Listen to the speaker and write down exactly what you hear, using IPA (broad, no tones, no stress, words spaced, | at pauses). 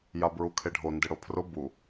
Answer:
jabɹukʰeɖʱo ndɪɽopʰrʊ bu